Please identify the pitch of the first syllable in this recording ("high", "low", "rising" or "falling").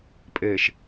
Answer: low